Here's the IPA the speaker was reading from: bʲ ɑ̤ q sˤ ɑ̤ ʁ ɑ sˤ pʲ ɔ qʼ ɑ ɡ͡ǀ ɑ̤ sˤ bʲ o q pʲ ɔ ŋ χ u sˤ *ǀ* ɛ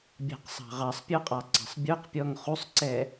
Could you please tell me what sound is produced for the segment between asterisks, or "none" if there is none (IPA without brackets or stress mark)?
ǀ